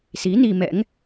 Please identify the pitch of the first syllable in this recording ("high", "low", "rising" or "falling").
rising